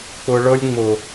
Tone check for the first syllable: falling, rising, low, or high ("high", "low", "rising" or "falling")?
low